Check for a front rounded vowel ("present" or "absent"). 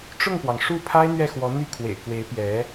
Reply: present